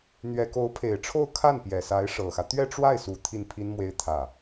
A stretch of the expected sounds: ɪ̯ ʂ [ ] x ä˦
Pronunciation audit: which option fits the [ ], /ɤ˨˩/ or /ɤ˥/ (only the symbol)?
ɤ˨˩